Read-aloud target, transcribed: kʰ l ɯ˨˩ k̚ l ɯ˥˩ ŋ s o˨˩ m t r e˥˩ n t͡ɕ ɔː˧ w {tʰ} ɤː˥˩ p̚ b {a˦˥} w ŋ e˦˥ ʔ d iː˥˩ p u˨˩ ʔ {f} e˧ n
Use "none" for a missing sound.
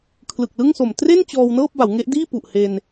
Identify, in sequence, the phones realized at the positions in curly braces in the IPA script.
n, a˩˦, h

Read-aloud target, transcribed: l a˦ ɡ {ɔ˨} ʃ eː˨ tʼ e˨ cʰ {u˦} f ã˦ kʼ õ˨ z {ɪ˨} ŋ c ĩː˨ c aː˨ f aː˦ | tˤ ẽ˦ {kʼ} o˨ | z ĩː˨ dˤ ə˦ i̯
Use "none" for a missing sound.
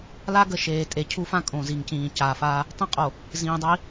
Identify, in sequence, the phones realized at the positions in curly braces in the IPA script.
ə˨, u˦, i˨, qʼ

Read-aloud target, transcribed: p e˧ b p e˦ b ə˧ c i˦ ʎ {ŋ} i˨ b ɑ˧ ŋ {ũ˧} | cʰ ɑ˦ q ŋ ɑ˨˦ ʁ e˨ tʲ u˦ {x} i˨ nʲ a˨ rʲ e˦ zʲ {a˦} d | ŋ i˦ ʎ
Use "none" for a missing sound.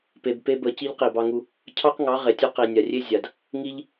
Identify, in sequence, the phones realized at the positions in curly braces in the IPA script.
q, u˧, q, a˨

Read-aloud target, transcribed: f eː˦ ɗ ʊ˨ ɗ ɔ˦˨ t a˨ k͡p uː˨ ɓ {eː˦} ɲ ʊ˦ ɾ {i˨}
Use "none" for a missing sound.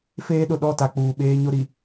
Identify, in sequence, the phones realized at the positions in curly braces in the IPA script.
eː˦, i˨

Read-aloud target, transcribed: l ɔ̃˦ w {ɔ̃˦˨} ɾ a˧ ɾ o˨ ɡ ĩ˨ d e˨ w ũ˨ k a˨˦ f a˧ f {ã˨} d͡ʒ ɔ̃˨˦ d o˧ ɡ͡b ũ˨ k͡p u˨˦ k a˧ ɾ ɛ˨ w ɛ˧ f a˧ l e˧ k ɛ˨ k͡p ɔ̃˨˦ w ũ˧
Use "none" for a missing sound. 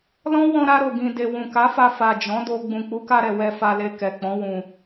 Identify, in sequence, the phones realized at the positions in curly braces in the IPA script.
ɔ̃˧, a˨

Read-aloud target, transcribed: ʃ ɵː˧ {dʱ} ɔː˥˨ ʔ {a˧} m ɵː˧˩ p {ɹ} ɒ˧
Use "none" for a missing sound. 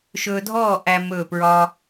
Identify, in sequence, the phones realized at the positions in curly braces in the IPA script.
dʱ, æ˧, ɹ

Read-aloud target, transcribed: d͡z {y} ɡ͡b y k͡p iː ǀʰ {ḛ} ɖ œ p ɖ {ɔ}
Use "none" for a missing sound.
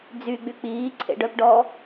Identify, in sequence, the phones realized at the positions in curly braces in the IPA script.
y, ḛ, ɔ

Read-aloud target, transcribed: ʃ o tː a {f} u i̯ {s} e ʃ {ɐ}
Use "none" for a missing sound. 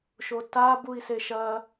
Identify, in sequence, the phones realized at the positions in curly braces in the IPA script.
b, s, ɐ

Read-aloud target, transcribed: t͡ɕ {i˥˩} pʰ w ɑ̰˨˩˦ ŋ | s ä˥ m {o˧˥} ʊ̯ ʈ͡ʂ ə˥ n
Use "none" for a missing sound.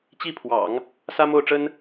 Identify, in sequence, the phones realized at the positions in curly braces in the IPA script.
i˥˩, o˥˩

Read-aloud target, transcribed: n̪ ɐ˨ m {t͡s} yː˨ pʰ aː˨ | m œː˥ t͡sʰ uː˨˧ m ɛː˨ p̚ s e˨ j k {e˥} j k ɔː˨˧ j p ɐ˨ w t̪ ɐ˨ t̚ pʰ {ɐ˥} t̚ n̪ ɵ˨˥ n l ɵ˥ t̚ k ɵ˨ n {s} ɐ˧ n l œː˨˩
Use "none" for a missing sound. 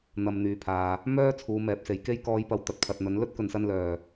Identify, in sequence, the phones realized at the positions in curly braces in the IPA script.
n̪, e˥, ɐ˨, s

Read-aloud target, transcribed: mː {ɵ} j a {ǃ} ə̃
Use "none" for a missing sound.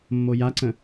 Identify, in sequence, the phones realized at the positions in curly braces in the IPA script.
o, ǀ

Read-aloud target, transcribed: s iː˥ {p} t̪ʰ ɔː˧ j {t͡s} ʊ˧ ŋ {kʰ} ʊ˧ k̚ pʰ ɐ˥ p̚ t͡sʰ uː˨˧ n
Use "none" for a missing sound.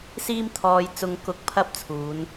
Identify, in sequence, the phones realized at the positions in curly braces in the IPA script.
m, t͡s, k

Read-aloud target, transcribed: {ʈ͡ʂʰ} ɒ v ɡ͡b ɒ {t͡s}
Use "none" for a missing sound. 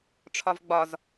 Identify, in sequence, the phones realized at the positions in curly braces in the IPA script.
ʈ͡ʂʰ, z

